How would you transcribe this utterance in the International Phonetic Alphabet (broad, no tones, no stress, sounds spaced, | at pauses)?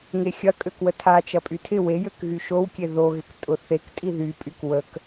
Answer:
ŋ e xʲ ɐ kʼ ø k w ə tʰ a t͡ʃ ɐ pʼ y tʰ ɪ w e j ø k ɣ y ʃ o w kʲ e ð o ɣ ɪ k tʼ ʊ θ e k tʼ i ð y pʼ y k w ə k